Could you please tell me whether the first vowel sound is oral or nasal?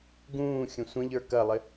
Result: nasal